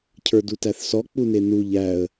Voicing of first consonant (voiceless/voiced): voiceless